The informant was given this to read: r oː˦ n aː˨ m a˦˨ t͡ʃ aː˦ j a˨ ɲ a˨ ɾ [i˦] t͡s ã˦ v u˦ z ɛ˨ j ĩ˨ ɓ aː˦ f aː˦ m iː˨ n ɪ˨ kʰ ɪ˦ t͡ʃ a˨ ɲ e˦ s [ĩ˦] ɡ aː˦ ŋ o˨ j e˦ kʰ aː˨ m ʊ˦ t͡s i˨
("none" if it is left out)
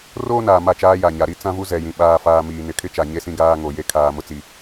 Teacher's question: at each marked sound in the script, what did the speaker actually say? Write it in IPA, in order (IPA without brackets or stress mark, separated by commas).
i˦, ĩ˦